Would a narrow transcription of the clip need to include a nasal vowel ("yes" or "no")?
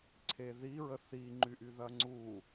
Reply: no